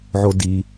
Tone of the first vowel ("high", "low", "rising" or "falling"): low